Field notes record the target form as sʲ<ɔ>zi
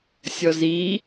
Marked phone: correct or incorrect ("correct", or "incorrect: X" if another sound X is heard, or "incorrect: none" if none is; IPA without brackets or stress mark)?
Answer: correct